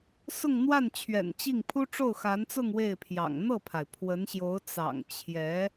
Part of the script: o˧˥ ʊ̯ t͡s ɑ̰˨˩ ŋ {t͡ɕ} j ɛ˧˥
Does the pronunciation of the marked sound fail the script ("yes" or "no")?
yes